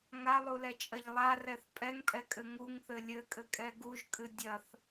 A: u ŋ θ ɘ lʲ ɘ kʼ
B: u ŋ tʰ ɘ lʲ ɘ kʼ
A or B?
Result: A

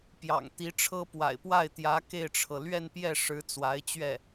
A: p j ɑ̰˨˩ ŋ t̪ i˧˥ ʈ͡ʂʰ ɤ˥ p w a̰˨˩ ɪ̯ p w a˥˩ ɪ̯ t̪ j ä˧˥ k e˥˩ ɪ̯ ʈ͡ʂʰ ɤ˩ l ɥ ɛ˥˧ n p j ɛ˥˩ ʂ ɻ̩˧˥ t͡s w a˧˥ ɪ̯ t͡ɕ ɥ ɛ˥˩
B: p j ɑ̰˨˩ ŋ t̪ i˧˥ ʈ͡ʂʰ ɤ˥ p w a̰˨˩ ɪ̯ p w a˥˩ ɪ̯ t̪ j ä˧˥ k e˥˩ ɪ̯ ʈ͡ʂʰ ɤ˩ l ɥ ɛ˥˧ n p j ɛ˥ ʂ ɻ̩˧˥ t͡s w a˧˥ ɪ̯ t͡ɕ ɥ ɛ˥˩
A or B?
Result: A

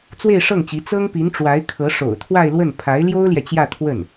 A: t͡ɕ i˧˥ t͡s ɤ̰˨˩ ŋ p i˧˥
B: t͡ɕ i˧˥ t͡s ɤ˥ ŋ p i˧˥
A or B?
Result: B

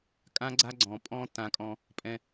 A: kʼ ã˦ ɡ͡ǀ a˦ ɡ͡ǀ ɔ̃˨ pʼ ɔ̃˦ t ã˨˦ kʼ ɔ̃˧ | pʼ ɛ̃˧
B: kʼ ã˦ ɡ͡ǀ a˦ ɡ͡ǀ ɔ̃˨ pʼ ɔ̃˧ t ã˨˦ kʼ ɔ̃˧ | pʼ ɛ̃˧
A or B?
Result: A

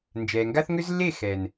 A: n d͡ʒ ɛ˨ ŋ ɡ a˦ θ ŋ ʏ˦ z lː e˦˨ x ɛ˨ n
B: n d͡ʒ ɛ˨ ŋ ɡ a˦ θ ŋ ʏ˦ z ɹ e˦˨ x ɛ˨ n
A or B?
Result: A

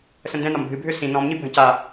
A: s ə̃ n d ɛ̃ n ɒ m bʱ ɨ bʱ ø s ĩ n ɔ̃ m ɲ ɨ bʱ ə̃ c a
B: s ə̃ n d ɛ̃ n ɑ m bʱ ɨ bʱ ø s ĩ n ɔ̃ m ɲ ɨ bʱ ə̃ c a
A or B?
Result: A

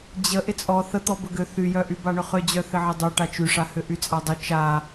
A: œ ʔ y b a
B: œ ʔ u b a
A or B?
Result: A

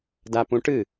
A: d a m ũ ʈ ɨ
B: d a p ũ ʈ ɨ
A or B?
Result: B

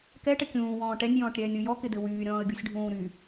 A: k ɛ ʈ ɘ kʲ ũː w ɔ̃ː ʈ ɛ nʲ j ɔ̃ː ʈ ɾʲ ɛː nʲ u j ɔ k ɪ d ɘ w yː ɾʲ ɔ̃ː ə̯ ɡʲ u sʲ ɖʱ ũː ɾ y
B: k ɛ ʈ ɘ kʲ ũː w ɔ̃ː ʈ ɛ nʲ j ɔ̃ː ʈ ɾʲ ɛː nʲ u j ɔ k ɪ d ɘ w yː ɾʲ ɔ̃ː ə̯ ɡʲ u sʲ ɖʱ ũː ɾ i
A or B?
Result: A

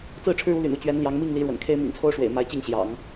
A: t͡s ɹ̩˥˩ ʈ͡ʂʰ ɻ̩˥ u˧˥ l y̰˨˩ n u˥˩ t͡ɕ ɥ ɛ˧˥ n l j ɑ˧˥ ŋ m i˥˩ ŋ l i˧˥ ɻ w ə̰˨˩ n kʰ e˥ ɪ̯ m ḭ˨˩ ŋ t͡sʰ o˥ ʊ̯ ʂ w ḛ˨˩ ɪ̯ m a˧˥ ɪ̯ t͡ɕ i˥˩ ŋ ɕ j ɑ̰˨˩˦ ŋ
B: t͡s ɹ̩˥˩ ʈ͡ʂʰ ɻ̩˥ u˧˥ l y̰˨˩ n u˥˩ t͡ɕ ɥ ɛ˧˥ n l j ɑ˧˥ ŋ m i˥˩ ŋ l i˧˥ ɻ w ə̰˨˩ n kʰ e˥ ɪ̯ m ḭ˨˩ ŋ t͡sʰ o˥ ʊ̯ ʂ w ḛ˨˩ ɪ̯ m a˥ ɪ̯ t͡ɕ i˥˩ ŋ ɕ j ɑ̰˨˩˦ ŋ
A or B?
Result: A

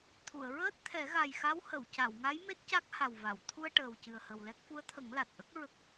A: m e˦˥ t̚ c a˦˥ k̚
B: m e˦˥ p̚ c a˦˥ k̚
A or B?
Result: A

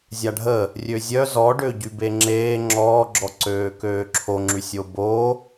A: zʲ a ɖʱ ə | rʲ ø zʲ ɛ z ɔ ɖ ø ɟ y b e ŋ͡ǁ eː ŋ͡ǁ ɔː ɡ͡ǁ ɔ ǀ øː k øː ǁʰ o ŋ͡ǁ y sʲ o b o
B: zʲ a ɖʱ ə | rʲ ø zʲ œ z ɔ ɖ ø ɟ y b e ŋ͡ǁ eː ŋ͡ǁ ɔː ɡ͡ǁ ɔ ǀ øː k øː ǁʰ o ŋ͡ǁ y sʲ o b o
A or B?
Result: B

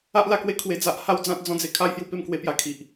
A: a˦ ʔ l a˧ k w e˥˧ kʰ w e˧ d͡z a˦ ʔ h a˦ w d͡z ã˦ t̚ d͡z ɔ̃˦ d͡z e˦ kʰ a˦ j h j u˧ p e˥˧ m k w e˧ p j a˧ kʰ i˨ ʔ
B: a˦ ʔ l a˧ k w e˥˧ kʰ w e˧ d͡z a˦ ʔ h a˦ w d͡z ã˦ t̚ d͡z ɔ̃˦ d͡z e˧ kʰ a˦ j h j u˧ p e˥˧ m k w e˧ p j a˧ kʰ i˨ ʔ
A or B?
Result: B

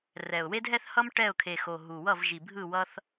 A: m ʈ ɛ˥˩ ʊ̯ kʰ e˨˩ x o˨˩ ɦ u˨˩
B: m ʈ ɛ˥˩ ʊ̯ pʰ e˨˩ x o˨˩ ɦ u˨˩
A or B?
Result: A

